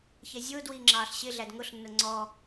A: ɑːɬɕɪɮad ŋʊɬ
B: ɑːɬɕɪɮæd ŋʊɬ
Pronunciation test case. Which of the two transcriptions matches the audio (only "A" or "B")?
B